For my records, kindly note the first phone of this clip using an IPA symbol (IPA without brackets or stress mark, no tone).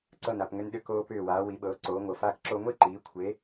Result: ǀ